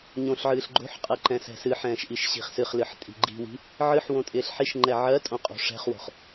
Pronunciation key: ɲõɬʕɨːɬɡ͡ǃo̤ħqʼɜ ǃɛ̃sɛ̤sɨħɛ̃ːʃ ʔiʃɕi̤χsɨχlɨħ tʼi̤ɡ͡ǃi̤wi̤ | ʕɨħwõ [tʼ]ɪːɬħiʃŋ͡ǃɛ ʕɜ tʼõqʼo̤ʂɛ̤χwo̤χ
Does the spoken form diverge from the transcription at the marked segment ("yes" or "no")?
no